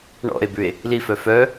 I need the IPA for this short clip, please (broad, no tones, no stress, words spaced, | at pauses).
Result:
ɳɔ̰e̯bʉe̯ | lifœ fœ